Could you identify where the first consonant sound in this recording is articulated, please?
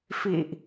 labial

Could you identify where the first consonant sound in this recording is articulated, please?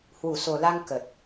glottal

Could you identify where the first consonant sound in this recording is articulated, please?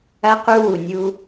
uvular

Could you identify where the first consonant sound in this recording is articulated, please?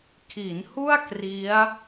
velar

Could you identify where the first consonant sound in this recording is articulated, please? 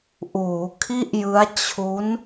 glottal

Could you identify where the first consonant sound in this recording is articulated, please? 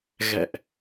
velar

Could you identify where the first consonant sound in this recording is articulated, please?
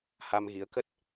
glottal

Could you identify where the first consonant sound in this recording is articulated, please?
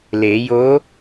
alveolar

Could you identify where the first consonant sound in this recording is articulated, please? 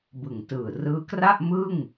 labial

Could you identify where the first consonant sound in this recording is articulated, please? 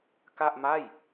velar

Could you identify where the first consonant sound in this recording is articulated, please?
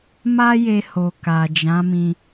labial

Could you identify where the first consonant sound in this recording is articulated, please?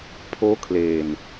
labial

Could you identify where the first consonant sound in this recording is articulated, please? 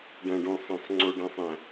retroflex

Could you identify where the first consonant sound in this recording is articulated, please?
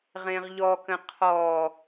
uvular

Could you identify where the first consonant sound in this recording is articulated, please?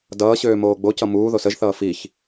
alveolar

